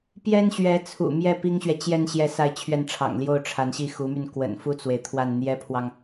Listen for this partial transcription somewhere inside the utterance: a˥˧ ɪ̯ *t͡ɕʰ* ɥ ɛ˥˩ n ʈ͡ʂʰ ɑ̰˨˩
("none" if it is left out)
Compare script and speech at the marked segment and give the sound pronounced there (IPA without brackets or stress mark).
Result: t͡ɕʰ